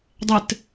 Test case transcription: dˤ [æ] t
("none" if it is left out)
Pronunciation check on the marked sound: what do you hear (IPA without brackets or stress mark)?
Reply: ɛ